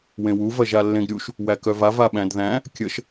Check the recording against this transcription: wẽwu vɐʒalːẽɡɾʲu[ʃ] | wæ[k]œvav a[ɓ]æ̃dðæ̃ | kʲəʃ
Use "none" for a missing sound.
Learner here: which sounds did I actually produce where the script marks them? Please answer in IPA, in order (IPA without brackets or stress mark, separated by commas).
ʃ, k, ɓ